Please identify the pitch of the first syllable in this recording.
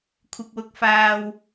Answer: low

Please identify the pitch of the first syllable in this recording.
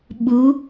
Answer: rising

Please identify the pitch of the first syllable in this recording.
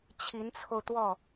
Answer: rising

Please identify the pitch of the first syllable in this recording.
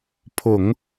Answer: low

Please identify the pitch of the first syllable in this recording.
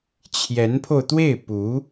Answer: rising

